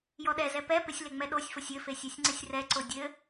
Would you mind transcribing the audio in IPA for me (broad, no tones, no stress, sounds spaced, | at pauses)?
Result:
j ɔ ɗ ɛ z ɛ p ɛ p ɪ sʲ l e ŋ͡m ɛ ɗ o sʲ f o sʲ ɘ f e sʲ o sʲ ŋ͡ǀ ɪ sʲ r ɛ ǀ o dʲ ɘ